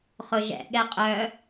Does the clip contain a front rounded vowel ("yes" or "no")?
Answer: yes